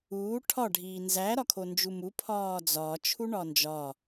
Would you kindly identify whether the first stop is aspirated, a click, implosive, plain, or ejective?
aspirated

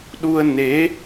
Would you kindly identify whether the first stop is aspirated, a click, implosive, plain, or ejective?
implosive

